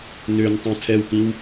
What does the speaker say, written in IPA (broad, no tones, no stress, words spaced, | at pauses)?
nøn tˤõtʰɛwkĩw